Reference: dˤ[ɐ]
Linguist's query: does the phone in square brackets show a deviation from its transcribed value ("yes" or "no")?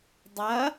no